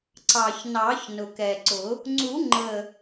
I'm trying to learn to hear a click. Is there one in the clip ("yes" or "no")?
yes